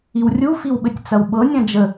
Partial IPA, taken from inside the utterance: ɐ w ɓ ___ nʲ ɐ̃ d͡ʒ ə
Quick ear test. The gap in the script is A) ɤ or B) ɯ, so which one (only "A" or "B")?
A